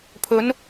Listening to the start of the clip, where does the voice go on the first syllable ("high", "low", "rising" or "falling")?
rising